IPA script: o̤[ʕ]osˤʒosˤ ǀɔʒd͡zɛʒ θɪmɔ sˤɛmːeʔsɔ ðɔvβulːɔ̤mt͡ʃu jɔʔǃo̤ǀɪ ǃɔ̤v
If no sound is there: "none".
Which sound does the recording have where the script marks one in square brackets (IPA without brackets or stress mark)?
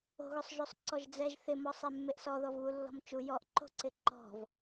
ɣ